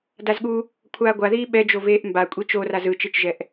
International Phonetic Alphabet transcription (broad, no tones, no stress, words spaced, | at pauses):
dazɠu | kʷʰaːɡʷaðiː ɓɛd͡ʒo veːʔmba kʷʼit͡ʃoraz ɯt͡ʃet͡ʃʒɛʔ